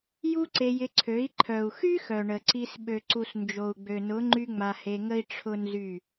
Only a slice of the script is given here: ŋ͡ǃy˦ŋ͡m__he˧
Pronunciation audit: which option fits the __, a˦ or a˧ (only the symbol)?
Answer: a˧